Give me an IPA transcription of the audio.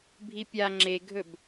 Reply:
bʱ i pʲ a ŋ͡ǁ e ɡʱ ɵ b

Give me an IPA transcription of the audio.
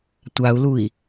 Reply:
tʷ a u̯ l u i̯

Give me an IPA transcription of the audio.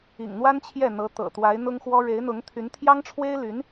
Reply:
ḭ˨˩ ŋ n̪ w a˥ n t͡ɕʰ j ɛ˥˩ n̪ ɤ˧˥ t̪ ɤ̰˨˩ t̪ w a˧˥ ɪ̯ n̪ ʊ˥ ŋ x w ɔ˥ ɻ e˧˥ ɪ̯ n̪ ʊ˧˥ ŋ t̪ʰ y˧˥ n t̪ʰ j ɑ˥ ŋ ʈ͡ʂʰ w e˥ ɪ̯ l y˧˥ n

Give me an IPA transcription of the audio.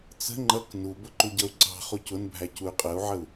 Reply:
t͡s ə̤ ŋ͡ǃ ʌ k n u b ʊ ǃ u ɟ ʌ u̯ ǀ ɑ̤ χ u c ʊ n bʱ æ c u y̯ qʼ ə u̯ ʕ ə u̯

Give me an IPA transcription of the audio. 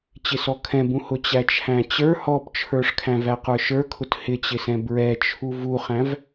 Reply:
t͡ɕ ɪ s ɔ kʰ ɛ̃ b ũ h ʊ t͡ɕ æ t͡ʃʰ æ̃ t͡ɕ ə˞ h ɔ p t͡ʃʰ ə˞ ʂ kʰ æ̃ v æ q ə˞ ʃ ə˞ kʰ ʊ t h ɪ t͡ɕ ɪ s ɛ̃ b ɹ ɛ t͡ʃʰ u v u χ æ̃ v

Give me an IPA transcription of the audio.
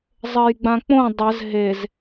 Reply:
zˤ ɘ j ɡ͡b ã k͡p õ dˤ ɘ z ɦ e z

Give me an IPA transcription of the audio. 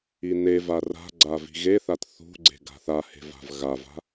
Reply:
i n e v a r a̤ ɡ͡ǀ a v i̤ ɣ e θ a t θ ṳ ɡ͡ǀ e̤ ɡ a̤ θ a h e̤ v a̤ v ɣ a v a̤

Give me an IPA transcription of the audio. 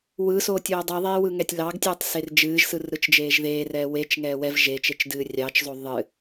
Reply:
w ɯ s oː tʲ oː dˤ i ðˤ eː w ɯ ŋ ɛ tʲ l ɑ ɡ tʲ ɨː tˤ s e r d͡ʒ ɨː ʒ s ɯ r ɾ ɯ t͡ʃ d͡ʒ eː ʒ ð eː r ɛː w e t͡ʃ ŋ ɛː w ɛ v ʒ e t͡ʃ e t͡ʃ d ɨː rʲ ɑ t͡ʃ zˤ o ðˤ ɨ

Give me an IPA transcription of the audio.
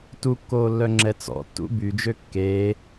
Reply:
t u kː oː lː œ ŋ͡ǁ ɛ t͡s ɔ̰ tː ṵ b y d͡ʒ ø kː eː

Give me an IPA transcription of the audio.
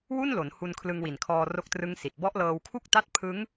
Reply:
w u˥˩ n l o˩˦ n h u˧ n kʰ l ɯ˧ ŋ w i˨˩ n kʰ ɔː˧ r o˦˥ k̚ t r ɯ˦˥ ŋ s i˨˩ t̚ b ɔ˦˥ ʔ l ɤː˧ w kʰ u˥˩ k̚ t a˥˩ t̚ pʰ ɯ˦˥ ŋ

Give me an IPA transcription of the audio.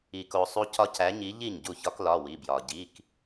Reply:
i˩ k o˩ sˤ u˦ c ɒ˦ c æ˨˥ ɲ i˨˥ ʎ i˥˩ ɲ ɟ u˥˩ ç ɒ˦ k l ɒ˩˧˩ w i˩˧˩ b j ɒ˩ ɟ i˩˧˩ k

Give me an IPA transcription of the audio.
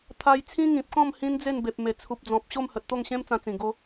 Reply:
t̪ʰ a˧ j t͡sʰ ĩ˦ ŋ ĩ˨ p̚ k ɔ̃˥˧ m h ĩ˦ n d͡z e˥˧ n b e˨ p̚ m e˨˩ t͡sʰ u˨ p̚ d͡z ɔ̃˨ p̚ ɕ o˥˧ m h ə˨ t̚ t̪ o˥˧ ŋ ɕ ẽ˦ m t͡s ã˧ t͡s ĩ˨˩ ɡ o˦

